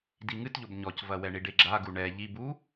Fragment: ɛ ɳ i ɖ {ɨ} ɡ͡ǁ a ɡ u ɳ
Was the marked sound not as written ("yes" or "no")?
yes